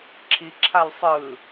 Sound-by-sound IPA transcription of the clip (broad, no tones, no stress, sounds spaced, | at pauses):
ǁʰ i ǁʰ a l sˤ ɯ